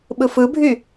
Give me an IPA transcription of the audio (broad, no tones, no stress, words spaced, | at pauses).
ɓɯfɯbʱy